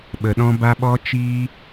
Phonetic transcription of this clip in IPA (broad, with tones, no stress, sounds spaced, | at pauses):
ɓ ə˨ ɗ ɔ̃˧ b a˧ ɓ ɔ˧ t͡ʃ iː˧